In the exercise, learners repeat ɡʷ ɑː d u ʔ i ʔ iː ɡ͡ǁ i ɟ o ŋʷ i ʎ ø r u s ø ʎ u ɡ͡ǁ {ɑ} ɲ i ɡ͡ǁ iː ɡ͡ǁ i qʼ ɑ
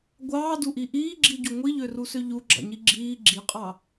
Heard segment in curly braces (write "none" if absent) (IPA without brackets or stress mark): ɑ̰